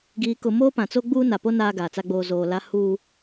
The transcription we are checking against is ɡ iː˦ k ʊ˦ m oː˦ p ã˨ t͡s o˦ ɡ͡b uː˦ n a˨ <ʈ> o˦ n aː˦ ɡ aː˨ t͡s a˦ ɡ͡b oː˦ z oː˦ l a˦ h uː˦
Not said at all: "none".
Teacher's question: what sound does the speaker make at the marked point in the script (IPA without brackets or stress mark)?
p